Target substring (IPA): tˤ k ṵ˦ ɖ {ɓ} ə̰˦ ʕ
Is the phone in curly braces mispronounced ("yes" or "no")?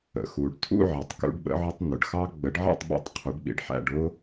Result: no